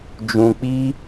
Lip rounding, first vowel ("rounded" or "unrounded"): rounded